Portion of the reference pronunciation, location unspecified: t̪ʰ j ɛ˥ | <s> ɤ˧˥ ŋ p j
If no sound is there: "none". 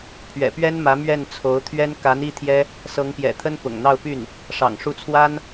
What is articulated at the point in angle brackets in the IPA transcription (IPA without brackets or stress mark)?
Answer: s